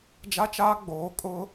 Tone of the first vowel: high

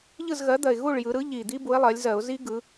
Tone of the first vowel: falling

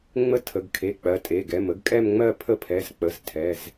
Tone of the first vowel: falling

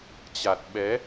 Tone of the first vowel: low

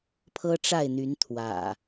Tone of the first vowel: high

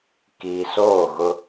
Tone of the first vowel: low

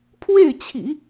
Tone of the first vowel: falling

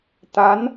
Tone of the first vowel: rising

